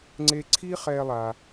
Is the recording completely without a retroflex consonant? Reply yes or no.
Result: yes